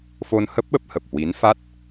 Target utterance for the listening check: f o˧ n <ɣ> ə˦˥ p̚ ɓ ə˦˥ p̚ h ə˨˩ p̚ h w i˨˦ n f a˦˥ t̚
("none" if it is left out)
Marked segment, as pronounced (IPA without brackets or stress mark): h